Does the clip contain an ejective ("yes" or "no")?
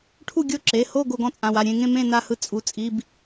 yes